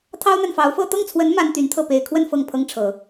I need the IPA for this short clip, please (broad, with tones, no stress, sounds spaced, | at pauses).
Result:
t̪ʰ ɑ˥ ʊ̯ n̪ a˨ n f ɑ˧˥ ʊ̯ f ɤ˥˧ t̪ ɤ˥˩ ŋ t͡sʰ w ə˧˥ n m a˥ n t̪ y˧˥ n t̪ʰ ɤ˥˩ p e˨˩ ɪ̯ kʰ w ə˥˧ n f ɤ˥˩ ŋ pʰ ɤ˥ ŋ ʈ͡ʂʰ ɤ˨˩˦